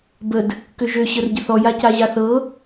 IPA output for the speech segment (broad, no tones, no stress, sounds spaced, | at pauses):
b ə d | k ø ʒ ø ɕ ə r ɟ ə θ ɔ j a c a ʑ a θ ɤ